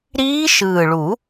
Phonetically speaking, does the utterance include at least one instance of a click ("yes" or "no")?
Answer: no